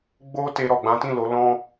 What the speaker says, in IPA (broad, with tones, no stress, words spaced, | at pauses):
ɡ͡bo˦ te˧ɾɔ˨ɡ͡bã˨˦tĩ˦˨ lo˨˦lɔ̃˦